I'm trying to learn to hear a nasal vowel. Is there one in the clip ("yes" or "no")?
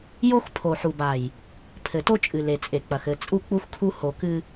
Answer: no